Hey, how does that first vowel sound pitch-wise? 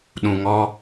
low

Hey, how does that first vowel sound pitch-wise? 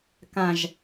low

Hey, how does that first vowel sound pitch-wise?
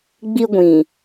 high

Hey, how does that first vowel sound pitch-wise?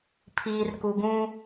low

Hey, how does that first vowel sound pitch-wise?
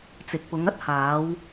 low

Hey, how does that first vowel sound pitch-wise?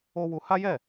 high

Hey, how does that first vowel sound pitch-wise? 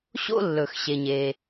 high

